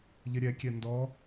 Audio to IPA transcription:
ʎ ɪ ɾʲ ɛ kʲ ɛ n d ɔ

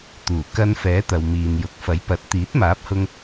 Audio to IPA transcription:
t̪ uː˨˩ k ɐ˧ n f ɛː˨˥ t̪ ɐ˨ w m iː˨ n j ʊ˨ k̚ f ɐ˨˥ j p ɐ˨ t̚ t̪ iː˨˥ t̚ m aː˨˥ p̚ h ʊ˧ ŋ

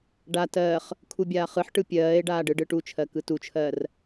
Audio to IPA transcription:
ɖ a t ɜː χ | kʰ u bʲ aː χ ɯ ħ ʈ ɯ pʲ ɜː e̯ ɖ aː ɖ ɯ ɖ ɯ ʈ u t͡ʃʰ ɜ k ɯ t u t͡ʃʰ ɜː r

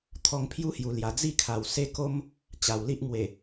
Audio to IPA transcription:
t̪ʰ ɔ˧ ŋ pʰ j u˦ h j u˨˩ l j a˨˩ d͡z i˥˧ kʰ a˨˩ w s e˥˧ k o˦ m | t͡ɕ a˨˩ w l i˦ ʔ ŋ w e˨˩

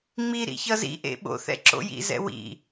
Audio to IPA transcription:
ŋ͡m i ɾ ḭ ç ʌ z ḭ ʔ ḛ ɓ o̰ θ ɛ̰ ǁ o̰ j ḭ z ɛ̰ w ḭ

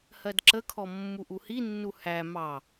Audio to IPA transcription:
h ɜ d ǁ ə kʰ ɔ mː u ʔ u h i nː u h æ m ɑ

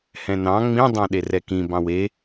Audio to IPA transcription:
h ɛ̃ n ɑ̃ ŋ͡m ĩ dˤ ɑ̃ ɗ e r ɛ k ĩ b ɑ̃ w e

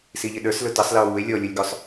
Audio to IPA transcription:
s i ʎ ɪ ɗ ə˞ s l ʊ t ʌ sˤ l ə o̯ w u e̯ lʲ ɔ lʲ ʊ lʲ ɡ ʊ sˤ

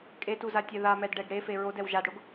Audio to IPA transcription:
kʼ e t u z a tʲ ɛ ð a m ɛ d ɖ ɛ ɡ ɽ e f e ɹ o d ɛ w ʒ a d ɽ o ɡ

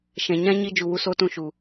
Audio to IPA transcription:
ʃ ɛ̃˨ ɲ ã˦ ɲ i˧ d͡ʒ u˨ w u˧ s oː˦ t ũ˧ ʃ u˨

